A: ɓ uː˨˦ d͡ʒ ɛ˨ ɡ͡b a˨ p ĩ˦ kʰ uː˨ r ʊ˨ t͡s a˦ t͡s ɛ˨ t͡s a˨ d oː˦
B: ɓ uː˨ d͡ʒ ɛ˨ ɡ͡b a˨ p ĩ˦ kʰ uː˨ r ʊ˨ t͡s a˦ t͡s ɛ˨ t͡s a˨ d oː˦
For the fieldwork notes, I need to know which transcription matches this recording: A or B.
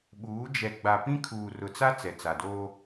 A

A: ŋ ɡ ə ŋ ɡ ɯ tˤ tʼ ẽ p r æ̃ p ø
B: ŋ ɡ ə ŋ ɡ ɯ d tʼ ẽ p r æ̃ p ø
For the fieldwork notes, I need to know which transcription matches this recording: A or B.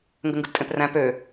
B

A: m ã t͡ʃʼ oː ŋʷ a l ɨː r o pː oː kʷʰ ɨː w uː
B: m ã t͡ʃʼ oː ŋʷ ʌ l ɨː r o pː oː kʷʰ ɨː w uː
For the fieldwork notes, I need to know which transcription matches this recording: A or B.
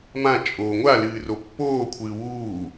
A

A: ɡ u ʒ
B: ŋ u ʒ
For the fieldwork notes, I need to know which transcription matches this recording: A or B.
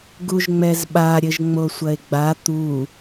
A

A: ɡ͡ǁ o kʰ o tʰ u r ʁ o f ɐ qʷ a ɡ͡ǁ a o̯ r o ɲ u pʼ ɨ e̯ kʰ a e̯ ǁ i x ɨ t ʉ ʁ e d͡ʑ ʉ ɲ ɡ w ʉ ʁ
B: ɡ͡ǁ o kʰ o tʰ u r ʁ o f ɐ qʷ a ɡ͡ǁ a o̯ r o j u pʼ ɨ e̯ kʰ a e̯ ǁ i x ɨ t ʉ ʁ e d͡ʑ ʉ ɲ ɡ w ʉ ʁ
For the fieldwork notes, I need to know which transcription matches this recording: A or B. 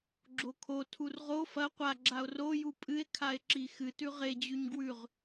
B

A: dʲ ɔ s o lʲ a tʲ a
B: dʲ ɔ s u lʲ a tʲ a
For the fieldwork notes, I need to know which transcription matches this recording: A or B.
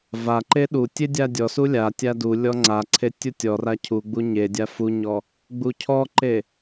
B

